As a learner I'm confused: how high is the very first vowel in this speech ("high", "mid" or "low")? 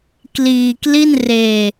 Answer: high